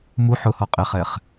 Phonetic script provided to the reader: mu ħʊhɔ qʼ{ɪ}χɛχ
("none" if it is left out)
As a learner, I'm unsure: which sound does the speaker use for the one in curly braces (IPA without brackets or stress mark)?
ɪ